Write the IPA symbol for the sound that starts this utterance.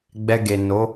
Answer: ɡ͡b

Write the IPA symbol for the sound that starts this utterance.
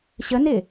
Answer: ɕ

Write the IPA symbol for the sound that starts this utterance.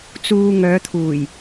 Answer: t͡s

